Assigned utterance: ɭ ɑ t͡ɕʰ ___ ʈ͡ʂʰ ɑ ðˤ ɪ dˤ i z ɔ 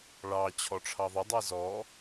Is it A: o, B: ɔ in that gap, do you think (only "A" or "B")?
B